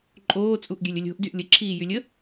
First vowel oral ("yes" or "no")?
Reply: yes